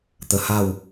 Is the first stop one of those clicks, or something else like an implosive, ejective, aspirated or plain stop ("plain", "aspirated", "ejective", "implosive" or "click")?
plain